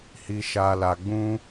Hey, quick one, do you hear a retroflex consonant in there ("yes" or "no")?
no